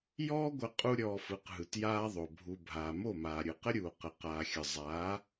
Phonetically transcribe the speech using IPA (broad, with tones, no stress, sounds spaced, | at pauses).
j ɔː˦ ɡʷ ə˧ qʼ u˦ ɾʲ ɔː˧ f ɯ˨˦ q ɦ ɯ˨ t j aː˦ ðˤ o˨ bʱ u˧ bʱ aː˨ m o˦˨ m aː˨ ɾʲ ɯ˨ q ə˦ ɾʲ uː˨ q ə˨ q aː˧ xʲ ə˧ zˤ aː˨˦